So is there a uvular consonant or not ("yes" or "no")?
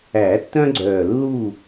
no